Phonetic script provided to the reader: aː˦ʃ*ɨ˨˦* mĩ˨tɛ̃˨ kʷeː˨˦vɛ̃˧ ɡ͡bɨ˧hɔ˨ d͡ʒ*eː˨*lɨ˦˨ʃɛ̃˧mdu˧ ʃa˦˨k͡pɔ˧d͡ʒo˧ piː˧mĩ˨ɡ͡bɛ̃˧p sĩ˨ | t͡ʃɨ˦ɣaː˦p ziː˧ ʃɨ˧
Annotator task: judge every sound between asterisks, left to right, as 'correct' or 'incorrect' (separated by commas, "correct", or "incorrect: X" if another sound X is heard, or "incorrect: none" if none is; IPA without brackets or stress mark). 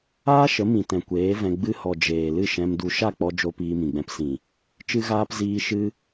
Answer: incorrect: ə˨˦, correct